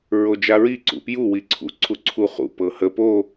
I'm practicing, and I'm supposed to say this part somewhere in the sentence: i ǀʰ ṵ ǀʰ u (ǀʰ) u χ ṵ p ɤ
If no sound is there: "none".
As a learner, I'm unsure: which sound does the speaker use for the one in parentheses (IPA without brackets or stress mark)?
ǀʰ